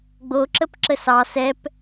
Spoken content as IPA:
ɡ͡b o ǁ ə p ǁ ə s ɑ s ɛ p

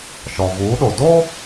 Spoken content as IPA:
ʃ ɔ˨ v uː˨˦ ɗ o˨ d o˦

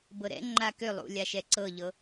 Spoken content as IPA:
b ɤ ɾ ɛ̰ ŋ͡ǃ a k ʏ lˠ ṵ lʲ a ʃ ɛ ǀ ɤ ʎ ɤ

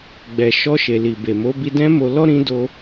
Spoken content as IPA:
ɡ͡b ɛ˨ ʃ ɔ˧ ʃ e˨ l i˨ b e˨ m o˨˦ b i˧ d ɛ̃˦ m o˧ l ɔ˦ ɾ ĩ˦ d o˧

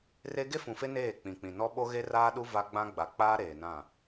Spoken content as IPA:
r e˦ ɡ e˦ f ũ˨ f e˦ n eː˦˨ k͡p ĩ˨ k͡p ĩ˨ n ɔ˦ ɓ o˦ ɣ e˦ r aː˦ ɗ u˦ v a˦ ɡ͡b ã˦ ɡ͡b a˨ k͡p aː˦ ɾ eː˨ n ã˦˨

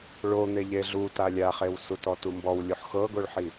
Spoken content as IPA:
ɭ o n̪ e ʎ e ɮ u t a lʲ a χ e w s u t ɔ t u m b ɔ w lʲ o ħ x ɤ ɡ o ɭ ħ i

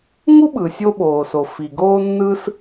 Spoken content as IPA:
ŋ u˥ ɓ ɯ˩ sʲ o˥ ɓ oː˩ s o˩ f i˩ ɡ oː˥ nː ɯ˥ s

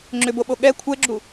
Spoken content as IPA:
ŋ͡ǁ ʏ b o ɓ o ɠ ɛ kʷʰ ɛ ɡ͡ǁ u

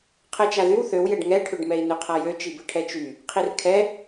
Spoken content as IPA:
qʰ ɛ t͡ʃ a ð y w θ ø w j ɛ ɖ ŋ ɛ ʈʰ ø ɖ m ɛ i̯ n ø qʰ a j ø t͡ʃ i b ɘ ʈʰ ɛ t͡ʃ y | qʰ i r kʰ ɛ

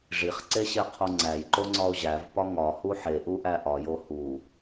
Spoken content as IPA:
ʐ i χ ǀ e ɕ e qʰ o ŋ͡ǀ æ j ǃ o ŋ͡ǀ ɒ o̯ ʑ æ v p ɒ ŋ ɒ h u ħ e ʔ u ʔ æ ʔ ɒ j o h u

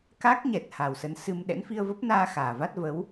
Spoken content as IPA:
k a˦˥ k̚ ɲ ɛ˨˩ t̚ h a˨˩ w s ə˨˦ n s ɨ˧ m ɗ ɛ̰˧˥ n f i˧ ə̯ v ə˦˥ p̚ n aː˧ x aː˨˩ v a˦˥ t̚ v ə˨˦ w

